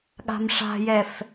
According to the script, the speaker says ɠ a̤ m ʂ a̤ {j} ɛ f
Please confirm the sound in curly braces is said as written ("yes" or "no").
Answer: yes